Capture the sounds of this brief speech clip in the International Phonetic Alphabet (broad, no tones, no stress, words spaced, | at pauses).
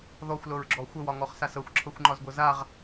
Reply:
ðɔxʷlɤɹɡ͡ǁɔ xʷəwɒŋɔχsas ɤxʷǁʰɤxʷŋ͡ǃɒzɡʷɤ zaʁ